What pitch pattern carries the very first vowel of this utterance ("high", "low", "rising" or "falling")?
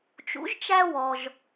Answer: rising